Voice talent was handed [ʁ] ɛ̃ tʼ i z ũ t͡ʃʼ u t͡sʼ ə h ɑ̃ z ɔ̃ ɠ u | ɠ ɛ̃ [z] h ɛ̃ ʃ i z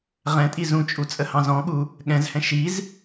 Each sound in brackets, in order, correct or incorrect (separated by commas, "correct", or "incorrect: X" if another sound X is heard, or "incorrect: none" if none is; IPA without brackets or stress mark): correct, correct